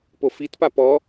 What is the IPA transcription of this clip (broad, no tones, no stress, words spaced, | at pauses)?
pofitpa pɔ